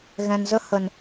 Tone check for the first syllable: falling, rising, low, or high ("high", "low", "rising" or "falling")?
low